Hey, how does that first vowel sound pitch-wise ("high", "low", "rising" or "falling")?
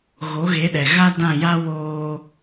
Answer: rising